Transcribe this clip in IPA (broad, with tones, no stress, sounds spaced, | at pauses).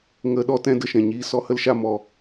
ŋ ə˧ ɗ ɔ˧ t ɛ̃˧ d ə˧ ʃ ɛ̃˨ ɲ iː˧ s ɔ˧ h ə˦ l ʃ a˧ m ɔ˨